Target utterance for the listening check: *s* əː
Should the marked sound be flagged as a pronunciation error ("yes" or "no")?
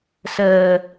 no